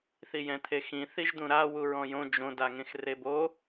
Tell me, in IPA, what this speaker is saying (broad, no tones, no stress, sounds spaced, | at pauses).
θ i j ɛ̃ t̪ʰ e x ĩ θ i ʒ d̪ ũ ɾ a w u ɹ ɔ̃ j õ d͡ʒ õ d a ŋ ẽ x r e b o